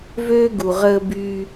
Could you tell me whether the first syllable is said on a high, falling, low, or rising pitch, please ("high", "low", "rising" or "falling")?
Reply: high